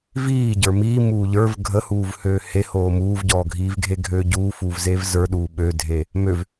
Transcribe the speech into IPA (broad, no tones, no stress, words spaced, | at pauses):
viːɟə˞ miːmuː ʎə˞v ɡʱəhuːvhøː he hoːmuːvɟɔːɡʱiːv ɡʱeɡʱøːɟuːfuːv zevzə˞ɗuː ɓødʱe | møv